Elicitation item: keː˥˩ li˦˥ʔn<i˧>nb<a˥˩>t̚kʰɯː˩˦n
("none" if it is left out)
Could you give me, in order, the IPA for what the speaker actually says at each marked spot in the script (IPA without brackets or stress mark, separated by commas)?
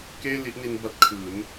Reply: i˧, a˦˥